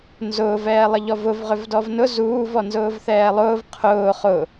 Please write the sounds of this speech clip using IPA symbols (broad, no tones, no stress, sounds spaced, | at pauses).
n z ʊː v ɛː lˠ ə ʎ ɔ v ʊ v ʁ ʏ v d ɔ v n ʊ z uː v ɔ n z ʊː v θ ɛː lˠ ʊː v qʰ ʊː χ ʊ